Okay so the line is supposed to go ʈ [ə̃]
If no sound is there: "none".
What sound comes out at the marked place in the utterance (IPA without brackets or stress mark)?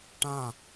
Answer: ã